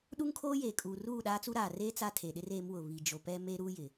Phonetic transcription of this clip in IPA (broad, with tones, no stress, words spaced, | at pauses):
ɗu˦ŋkʰoː˦jeː˨kʼuː˨ ruː˦˨ɗaː˦t͡su˦ɾaː˨ reː˦ t͡sa˦tʰe˨ɗɪ˦r e˨˦mwʊ˨βi˨ d͡ʒo˨pɛ˦ me˦ɾuː˦jɪ˨